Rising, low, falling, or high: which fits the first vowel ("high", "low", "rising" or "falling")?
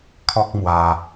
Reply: high